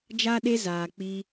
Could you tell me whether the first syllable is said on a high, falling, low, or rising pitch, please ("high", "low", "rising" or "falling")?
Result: high